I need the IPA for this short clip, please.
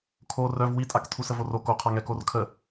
kʰo rœv witʼak tʰusəvoro koqʰaŋɛ korkʰə

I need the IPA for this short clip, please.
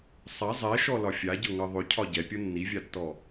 sˤa zˤɛʃɔlɒ fʲaɟɤŋɤ ðˤʏcʰɒ ɟɛpʲɤ nːivʲatːɔ

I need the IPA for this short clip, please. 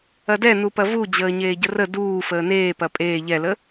ɐdɛnupɐ vud͡ʑəː ɲeːɟərə duː fəːneː pɐpʼeː ʎɛlə

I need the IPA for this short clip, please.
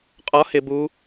qʼɒ hɪ bu

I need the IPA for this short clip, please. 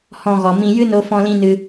hɔ̃˧ɣɔ˨ mĩ˧ jɨ˦no˧fɔ̃˧lĩ˧ nɨ˧

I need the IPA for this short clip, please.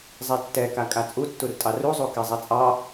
zˤɛtːɛka kʼat͡sʼu tːurtʼɑruzˤu kɛzˤɛt͡sʼɑ

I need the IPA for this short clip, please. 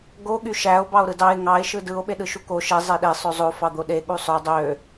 ɡo ɠyʃæo̯ bɑo̯ɾɯdɑe̯ ŋɑe̯ ʃɯdɯo̯ ɓeɗɯʃuko ʃe zˤeɗe sˤøzˤo fɑd̪oɗe ɠusˤø dˤø

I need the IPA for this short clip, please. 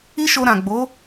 i˦ʃo˧ɾã˨ ɡ͡bo˨˦

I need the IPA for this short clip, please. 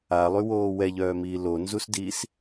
alˠywoː wɛʎœːmiː lonzusdiːs

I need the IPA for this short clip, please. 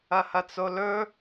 ɐhɐt͡solɵ

